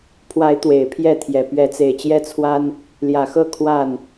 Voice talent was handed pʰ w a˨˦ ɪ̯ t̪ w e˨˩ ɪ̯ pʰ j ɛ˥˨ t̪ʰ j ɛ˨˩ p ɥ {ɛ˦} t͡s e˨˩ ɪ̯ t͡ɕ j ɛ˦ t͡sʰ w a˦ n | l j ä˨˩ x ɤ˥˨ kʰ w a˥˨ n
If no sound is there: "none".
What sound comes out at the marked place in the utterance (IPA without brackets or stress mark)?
ɛ˨˦